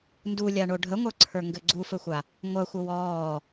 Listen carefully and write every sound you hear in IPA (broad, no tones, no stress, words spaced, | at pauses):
ndulʲaɳo ɖʱəŋʷə˞ǀʰə˞ŋɡɘ ɡ͡ǀufɘxʷa | ŋʷɐxʷə wɔː